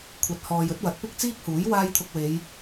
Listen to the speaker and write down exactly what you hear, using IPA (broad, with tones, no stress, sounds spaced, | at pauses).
kʷʰ ɐ˨ t̚ h ɔː˨ j ɵ˨˥ t̚ w ɐ˨˥ t̚ p ɪ˥ k̚ t͡s iː˥ k̚ h uː˨˥ j w aː˥ j t̪ʰ ʊ˧ k̚ w e˨˧ j